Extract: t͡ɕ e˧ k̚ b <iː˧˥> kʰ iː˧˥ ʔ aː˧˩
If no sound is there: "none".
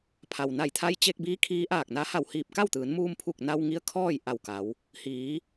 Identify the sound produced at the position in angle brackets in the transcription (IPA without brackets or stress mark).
iː˧˥